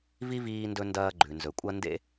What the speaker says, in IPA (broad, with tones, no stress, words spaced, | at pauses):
vi˥ viː˧ndɵ˧ ndɐː˧ɡ͡ǃʉ˩ nzɵ˩kʷʼɐ˥ndḛ˥